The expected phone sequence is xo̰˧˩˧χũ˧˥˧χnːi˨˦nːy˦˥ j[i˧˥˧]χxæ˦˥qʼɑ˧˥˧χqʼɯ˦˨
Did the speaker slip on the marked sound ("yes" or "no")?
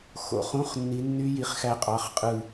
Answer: no